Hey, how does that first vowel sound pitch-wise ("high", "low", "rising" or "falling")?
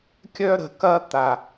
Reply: high